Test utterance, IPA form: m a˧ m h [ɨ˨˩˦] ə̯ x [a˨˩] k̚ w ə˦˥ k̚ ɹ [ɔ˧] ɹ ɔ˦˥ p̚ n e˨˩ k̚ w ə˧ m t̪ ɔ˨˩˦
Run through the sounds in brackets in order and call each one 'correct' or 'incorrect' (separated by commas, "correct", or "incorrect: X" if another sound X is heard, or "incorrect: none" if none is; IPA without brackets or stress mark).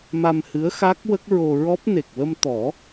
incorrect: ɨ˧˥, incorrect: a˦˥, incorrect: o˧